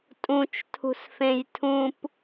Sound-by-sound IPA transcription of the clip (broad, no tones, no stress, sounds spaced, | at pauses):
tʼ ũ t͡ʃ tʰ ṳ s f ẽ j tʰ ũ p